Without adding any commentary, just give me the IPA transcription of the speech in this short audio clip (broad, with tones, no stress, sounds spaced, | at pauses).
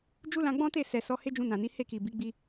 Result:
d͡ʒ u˦ l ã˧ ɡ͡b ɔ̃˦ t e˦˨ s ɛ˨ s ɔ˨˦ h e˦ d͡ʒ ũ˧ n ã˨ n i˨˦ h e˦˨ k i˨ b i˨˦ ɡ͡b i˦